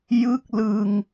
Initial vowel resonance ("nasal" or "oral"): oral